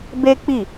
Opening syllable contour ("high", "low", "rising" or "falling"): high